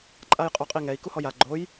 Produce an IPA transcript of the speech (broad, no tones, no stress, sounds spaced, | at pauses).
ǃʼ a j qʼ o qʼ i ŋ ɛ i̯ k u h ɔ j a ɡ͡ǃ o j